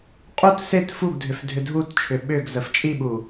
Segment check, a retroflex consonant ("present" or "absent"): absent